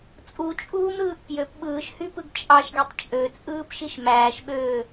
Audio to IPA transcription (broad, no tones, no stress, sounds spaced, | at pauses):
t͡sʼ u t͡ʃʼ uː m ɾ ɯː ʔ p j ø p ɓ ɯː ʃ h y p ɯ ɡ t͡ʃʼ ɑ ʃ ɡ e tˤ t͡ʃʼ ø t͡sʼ ɯː p ʃ i ʃ m æː ʃ ɓ øː